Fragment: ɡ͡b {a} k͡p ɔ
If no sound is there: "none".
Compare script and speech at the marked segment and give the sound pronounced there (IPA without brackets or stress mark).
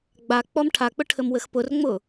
a